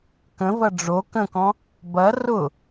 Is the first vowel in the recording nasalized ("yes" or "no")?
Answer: yes